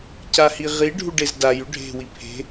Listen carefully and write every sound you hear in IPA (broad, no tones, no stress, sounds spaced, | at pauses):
c a h i ʁ i ɖʱ u ɖ e z d a j ʉ ɖʱ e̤ w i pʰ e̤